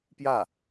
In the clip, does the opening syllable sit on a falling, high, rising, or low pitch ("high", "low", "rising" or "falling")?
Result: falling